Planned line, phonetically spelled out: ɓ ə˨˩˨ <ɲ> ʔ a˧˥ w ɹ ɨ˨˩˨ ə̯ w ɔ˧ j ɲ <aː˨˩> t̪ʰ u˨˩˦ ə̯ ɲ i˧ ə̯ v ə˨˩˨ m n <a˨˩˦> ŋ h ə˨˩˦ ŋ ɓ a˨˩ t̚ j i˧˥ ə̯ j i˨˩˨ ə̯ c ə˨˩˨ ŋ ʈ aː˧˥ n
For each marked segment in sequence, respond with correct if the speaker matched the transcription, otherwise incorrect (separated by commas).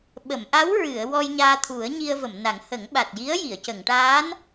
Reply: incorrect, incorrect, correct